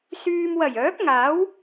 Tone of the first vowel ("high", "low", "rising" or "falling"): low